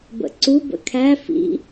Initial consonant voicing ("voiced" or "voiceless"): voiced